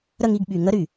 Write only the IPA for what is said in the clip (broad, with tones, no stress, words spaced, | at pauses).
ɾə˦˨ŋi˦˨ɡɓy˨ŋə˦ ɾy˨